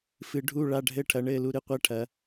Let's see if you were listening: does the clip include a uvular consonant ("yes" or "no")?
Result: yes